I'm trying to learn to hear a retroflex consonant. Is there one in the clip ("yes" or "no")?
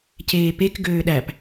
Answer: no